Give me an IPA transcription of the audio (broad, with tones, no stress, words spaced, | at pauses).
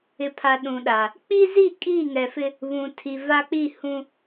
ɪ˨pʰa˨ ɗũ˨ɗa˨ | k͡pi˦zi˦˨ kʼiː˦˨ŋɛ˨fɪ˦ | βũ˨tʰi˨va˦ k͡pi˦˨hũ˦